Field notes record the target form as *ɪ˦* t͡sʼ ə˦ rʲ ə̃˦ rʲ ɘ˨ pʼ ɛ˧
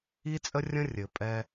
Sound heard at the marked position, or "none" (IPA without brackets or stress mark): i˦